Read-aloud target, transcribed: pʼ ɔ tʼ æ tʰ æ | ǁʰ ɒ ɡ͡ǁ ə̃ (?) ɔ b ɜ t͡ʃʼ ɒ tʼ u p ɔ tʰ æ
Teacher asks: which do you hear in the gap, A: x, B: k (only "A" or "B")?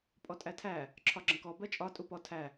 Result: B